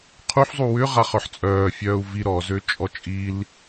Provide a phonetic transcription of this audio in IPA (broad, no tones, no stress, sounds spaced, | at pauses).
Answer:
qʰ u ħ zˤ u w ʏ ʁ a χ œ ħ t͡sʼ œː fʲ œː u̯ v i ɾ ɔ z ø t͡ʃʼ ɔ t͡ʃʼ i l